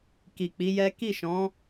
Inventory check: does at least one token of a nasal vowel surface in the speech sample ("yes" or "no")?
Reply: yes